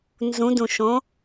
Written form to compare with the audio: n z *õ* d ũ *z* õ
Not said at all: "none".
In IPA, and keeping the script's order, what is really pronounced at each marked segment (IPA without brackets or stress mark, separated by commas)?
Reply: ũ, ʃ